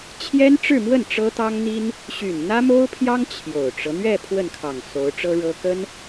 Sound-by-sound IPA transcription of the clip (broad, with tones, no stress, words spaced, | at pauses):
t͡ɕʰjɛ˥nʈ͡ʂɻ̩˥˧mwə˥˩n ʈ͡ʂɤ˥t̪ɑ˥ŋn̪i˥n | ɕy˨˩nn̪ä˥mo˥ʊ̯pʰjɑ˥ŋ t͡ɕʰjo˨˩ʊ̯ʈ͡ʂɤ˦ n̪ɥɛ˥˧ pʰwə˥˩nkʰɑ˨˩ŋ so˧˥ʊ̯ʈ͡ʂɤ˥ɻɤ˥ kə˥n